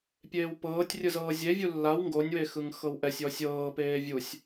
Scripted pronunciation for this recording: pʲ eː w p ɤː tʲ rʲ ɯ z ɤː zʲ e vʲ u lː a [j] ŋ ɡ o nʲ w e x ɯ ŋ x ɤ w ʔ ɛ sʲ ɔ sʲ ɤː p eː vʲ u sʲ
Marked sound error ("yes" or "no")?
yes